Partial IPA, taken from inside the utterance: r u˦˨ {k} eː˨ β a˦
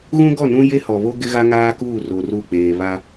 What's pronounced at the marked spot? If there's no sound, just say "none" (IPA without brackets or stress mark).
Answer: k͡p